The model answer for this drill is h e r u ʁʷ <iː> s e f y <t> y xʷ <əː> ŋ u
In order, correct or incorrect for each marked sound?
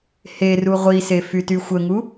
incorrect: i, correct, incorrect: ə

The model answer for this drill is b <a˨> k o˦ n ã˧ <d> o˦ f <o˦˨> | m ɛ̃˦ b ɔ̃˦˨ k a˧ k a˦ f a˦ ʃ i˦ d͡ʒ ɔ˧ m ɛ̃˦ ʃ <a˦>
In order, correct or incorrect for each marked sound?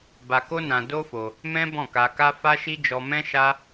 incorrect: a˧, correct, incorrect: o˧, correct

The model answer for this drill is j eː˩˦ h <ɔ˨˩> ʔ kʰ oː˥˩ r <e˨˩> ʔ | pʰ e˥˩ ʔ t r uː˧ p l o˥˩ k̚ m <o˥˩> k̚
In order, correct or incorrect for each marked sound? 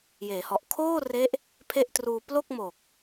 correct, incorrect: e˦˥, incorrect: o˨˩

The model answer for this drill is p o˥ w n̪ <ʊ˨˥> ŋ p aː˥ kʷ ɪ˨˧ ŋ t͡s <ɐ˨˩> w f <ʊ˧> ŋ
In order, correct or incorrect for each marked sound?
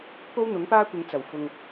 correct, correct, correct

